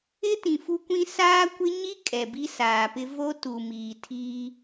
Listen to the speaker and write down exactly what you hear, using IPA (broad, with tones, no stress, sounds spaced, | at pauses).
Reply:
ɪ˦ t ĩ˨ f u˦ kʷ ĩ˦ s aː˦ kʷ ɪ˦ ɲ i˦ kʼ ɛ˨ b i˦ s aː˨ p ɪ˦ v o˦ t u˨ m iː˨ tʰ iː˦